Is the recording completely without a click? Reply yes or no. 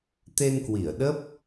yes